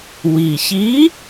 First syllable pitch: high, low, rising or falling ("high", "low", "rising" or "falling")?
low